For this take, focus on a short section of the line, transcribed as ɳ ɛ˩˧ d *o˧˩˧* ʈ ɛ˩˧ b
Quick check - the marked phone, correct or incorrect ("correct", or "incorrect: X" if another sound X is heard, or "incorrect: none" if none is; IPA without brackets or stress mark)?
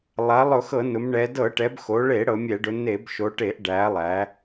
incorrect: ɤ˧˩˧